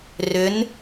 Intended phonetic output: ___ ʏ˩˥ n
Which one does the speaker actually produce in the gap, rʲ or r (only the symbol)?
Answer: r